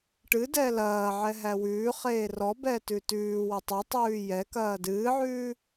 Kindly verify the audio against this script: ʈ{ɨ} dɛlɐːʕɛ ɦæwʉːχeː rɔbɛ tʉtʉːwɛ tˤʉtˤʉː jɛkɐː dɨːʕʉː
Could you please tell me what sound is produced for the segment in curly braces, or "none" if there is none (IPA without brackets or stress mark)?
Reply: ɨ